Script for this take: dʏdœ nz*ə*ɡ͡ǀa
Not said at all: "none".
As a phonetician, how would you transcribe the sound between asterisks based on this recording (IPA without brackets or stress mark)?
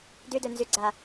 ʏ